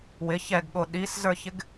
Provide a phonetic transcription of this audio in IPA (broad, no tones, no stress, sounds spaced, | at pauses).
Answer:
w ɪ ç ɛ ɡ ɠ o ɗ i s z ə˞ ç ɪ ɡ